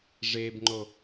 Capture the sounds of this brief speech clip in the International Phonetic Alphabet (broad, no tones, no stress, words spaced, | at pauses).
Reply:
ʐebŋ͡ǃo